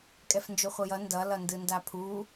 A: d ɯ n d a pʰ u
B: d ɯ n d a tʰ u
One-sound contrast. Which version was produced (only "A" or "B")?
A